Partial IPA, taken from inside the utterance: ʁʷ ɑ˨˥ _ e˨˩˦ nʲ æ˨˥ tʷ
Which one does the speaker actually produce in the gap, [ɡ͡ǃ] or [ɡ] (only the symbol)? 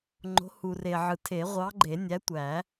ɡ͡ǃ